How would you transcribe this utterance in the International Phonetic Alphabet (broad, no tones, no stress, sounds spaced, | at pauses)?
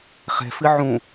χ ɛ̤ f ɨ ʕ ũ